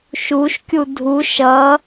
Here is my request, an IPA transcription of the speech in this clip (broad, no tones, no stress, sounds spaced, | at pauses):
ʃ u ʃ kʲ u dʱ u ʃ ʌ